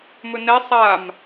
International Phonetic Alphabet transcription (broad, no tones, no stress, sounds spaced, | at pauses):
m ɵ n ɛ sˤ a m